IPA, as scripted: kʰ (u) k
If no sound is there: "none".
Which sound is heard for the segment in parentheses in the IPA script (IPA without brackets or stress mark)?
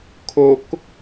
o